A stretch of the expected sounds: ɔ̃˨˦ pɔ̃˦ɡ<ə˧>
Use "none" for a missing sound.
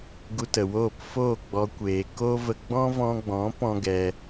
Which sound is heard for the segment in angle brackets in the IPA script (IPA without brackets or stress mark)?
ɛ˧